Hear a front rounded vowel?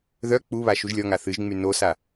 yes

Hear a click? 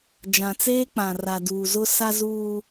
no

